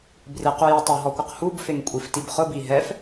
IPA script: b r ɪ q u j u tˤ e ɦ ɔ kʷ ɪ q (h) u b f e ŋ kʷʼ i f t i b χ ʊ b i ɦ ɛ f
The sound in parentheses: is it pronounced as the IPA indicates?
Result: yes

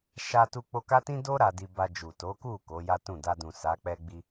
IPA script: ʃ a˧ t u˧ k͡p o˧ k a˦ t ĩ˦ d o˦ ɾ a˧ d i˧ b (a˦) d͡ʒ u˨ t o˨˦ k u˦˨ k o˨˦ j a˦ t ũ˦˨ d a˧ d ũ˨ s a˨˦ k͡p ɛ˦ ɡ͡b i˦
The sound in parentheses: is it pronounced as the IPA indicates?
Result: no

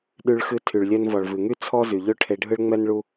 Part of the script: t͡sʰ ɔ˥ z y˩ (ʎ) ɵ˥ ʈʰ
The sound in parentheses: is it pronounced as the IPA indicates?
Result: yes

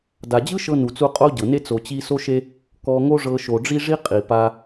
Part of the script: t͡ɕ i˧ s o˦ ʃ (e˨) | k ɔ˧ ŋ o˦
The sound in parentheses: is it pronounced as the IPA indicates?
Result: no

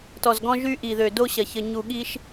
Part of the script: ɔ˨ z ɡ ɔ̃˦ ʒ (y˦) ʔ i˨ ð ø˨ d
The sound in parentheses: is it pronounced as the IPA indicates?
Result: yes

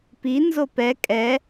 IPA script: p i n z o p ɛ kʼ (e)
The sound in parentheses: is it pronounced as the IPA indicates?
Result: no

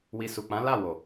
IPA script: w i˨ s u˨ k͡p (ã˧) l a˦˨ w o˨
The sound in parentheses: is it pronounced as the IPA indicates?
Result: no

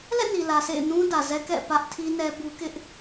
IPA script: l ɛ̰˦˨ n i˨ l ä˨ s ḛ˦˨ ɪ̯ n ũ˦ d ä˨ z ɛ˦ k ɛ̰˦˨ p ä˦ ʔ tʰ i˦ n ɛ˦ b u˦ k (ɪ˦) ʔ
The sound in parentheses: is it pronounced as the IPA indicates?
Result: yes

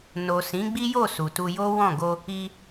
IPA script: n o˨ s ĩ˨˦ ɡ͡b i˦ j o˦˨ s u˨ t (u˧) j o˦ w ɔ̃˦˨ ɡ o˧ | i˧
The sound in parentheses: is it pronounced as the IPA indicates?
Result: yes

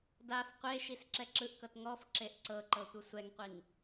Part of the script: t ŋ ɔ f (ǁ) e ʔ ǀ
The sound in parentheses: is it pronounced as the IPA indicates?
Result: yes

